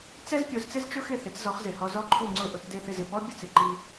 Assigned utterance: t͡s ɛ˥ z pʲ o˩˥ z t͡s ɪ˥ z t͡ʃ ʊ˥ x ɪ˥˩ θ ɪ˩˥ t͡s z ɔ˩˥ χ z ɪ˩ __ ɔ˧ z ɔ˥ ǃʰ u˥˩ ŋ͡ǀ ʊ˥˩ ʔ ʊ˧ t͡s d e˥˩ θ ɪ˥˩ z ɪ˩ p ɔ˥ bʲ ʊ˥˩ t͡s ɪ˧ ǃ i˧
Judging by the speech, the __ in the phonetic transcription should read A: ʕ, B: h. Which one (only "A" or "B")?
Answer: B